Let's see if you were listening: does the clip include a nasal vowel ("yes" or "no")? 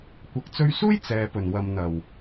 no